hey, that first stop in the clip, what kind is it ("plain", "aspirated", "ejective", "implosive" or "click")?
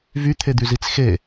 aspirated